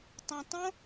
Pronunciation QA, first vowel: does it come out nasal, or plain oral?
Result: nasal